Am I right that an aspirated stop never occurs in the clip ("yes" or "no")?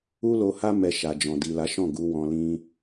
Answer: yes